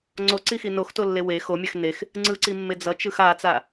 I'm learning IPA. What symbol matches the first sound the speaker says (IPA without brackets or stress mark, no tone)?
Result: ŋ͡ǀ